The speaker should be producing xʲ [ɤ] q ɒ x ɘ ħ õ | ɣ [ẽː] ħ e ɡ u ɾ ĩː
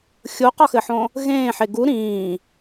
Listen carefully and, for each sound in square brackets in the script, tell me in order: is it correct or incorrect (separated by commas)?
incorrect, correct